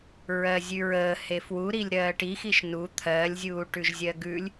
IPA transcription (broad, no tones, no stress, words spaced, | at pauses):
ɹɜzʲʉɹəː hefwuɾilʲ ɾɜːʈixiʃ nu t̪ʰɜlʲzʲuː ʈʉʒzʲɜɡʉlʲ